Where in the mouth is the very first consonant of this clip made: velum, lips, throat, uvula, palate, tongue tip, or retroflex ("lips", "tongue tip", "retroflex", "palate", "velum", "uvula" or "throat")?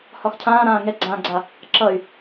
throat